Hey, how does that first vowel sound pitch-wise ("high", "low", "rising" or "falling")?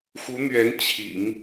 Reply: rising